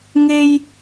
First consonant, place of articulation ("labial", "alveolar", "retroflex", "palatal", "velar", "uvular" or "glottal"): velar